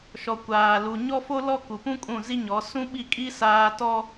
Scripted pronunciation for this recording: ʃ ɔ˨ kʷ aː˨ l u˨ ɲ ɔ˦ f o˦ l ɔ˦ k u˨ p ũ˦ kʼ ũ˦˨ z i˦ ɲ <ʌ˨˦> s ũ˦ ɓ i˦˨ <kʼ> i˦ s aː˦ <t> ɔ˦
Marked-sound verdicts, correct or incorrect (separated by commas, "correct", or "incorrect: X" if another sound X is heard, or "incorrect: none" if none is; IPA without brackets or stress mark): incorrect: ɔ˨˦, correct, correct